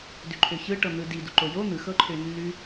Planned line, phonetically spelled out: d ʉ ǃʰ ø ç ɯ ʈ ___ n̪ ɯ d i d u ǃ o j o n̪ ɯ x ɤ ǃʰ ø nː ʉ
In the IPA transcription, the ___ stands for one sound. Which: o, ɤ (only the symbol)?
ɤ